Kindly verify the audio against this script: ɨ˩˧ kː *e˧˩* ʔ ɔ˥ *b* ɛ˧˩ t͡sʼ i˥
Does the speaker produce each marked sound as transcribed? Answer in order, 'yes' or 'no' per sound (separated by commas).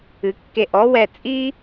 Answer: yes, no